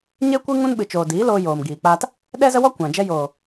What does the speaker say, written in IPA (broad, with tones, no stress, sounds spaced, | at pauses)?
ɲ e˦ kʷ ɨ˦ ŋ ũ˦ n ɓ ɨ˨ t͡ʃ oː˨ d iː˨˦ l oː˧ j oː˨ m ɡ iː˨ k͡p aː˧ t | ɗ ɛ˦ z ə˦ w ɔ˦ kʷ ã˨ d͡ʒ ɛ˧ j oː˨